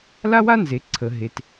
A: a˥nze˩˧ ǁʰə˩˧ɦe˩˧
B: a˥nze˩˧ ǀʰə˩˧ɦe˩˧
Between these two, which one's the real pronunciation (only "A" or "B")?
B